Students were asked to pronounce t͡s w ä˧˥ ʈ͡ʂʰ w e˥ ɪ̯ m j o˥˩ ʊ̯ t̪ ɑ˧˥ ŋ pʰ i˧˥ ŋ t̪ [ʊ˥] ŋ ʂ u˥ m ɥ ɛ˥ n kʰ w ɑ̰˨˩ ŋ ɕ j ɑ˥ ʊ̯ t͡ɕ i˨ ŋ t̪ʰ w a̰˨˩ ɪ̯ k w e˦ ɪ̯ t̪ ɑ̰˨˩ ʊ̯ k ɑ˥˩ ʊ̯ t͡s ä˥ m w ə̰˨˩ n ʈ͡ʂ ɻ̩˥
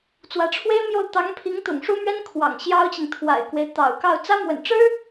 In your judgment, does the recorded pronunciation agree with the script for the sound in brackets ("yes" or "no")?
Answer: no